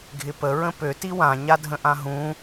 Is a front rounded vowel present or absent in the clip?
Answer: present